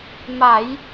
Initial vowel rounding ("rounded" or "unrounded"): unrounded